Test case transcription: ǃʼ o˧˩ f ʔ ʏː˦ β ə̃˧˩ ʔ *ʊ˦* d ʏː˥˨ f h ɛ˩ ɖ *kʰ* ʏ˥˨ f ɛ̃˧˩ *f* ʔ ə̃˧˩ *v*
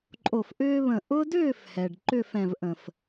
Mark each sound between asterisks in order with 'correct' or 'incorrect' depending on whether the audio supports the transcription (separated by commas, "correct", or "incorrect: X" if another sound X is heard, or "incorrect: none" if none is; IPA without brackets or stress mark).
correct, incorrect: ǃ, incorrect: v, incorrect: f